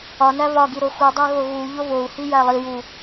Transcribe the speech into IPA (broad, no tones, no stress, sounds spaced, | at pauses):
ɒ n æ β ɒ ɡ i ɾ o x u dˤ æ ɣ o ɣ u ʎ o β o u̯ h i j æ lˠ i j u